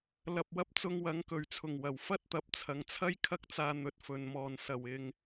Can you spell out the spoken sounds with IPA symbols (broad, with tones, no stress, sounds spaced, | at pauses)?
l ɐ˧ p̚ w ɐ˥ p̚ t͡s ʊ˧ ŋ w ɐ˨˥ ŋ k ɵ˨˩ ɥ t͡sʰ ʊ˨˩ ŋ w ɐ˨˩ w f ɐ˥ t̚ t̪ ɐ˨˥ p̚ t͡sʰ ɐ˨˧ ŋ t͡sʰ ɐ˥ j kʰ ɐ˥ k̚ t͡s aː˧ n̪ ɵ˨ t̚ f ɵ˨ n m ɔː˨˩ n s ɐ˨˩ w ɪ˨ ŋ